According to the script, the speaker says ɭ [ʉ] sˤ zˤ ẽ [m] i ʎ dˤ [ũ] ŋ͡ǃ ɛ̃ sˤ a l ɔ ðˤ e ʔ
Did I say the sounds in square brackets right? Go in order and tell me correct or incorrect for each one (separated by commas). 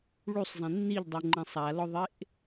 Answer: incorrect, incorrect, incorrect